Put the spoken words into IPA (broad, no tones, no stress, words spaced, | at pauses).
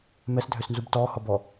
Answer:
mɛsdʱøsnzub tɔːhɔbɔ